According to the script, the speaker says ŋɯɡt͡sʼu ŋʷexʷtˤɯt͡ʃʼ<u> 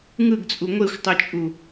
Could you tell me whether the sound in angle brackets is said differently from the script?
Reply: no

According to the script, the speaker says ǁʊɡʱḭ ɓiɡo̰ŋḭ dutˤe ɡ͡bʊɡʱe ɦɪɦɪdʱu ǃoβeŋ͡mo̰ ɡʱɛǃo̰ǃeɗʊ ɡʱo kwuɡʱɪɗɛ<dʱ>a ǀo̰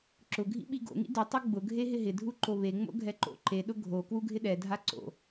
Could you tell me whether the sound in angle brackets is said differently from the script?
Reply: no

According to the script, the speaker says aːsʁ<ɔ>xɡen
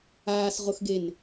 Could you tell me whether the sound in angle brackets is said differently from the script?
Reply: yes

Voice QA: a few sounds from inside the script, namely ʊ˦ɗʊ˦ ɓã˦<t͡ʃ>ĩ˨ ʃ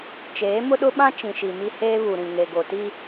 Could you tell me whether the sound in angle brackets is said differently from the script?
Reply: no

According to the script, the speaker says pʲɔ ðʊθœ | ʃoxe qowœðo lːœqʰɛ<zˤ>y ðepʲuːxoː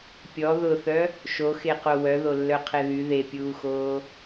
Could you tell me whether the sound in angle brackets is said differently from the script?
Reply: yes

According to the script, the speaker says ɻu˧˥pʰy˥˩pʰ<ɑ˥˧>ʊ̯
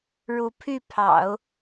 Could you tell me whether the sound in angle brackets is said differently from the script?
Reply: yes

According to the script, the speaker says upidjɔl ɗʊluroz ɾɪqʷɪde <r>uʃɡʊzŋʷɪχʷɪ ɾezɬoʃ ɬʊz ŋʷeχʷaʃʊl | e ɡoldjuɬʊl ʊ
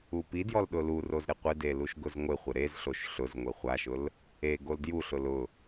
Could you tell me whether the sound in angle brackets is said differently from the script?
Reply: yes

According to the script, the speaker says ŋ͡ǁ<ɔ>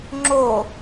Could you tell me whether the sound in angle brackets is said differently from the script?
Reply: yes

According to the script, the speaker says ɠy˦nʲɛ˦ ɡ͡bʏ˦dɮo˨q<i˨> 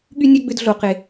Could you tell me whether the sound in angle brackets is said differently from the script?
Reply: yes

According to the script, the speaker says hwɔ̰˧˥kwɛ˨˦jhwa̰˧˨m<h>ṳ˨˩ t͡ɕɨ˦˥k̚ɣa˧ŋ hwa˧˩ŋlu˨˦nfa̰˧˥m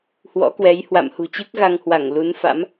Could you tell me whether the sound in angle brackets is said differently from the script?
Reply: no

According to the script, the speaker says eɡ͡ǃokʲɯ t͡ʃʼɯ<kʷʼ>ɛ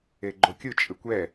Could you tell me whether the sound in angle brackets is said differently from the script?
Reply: yes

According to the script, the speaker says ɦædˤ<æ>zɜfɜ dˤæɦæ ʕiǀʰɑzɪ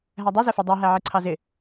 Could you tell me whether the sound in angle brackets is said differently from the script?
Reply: yes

